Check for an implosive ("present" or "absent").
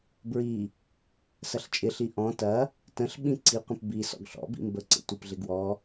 present